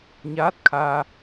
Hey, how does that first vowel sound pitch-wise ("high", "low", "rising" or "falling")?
rising